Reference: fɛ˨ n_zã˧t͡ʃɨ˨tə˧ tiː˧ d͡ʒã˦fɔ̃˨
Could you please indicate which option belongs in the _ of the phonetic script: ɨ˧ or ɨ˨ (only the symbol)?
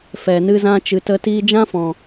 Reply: ɨ˧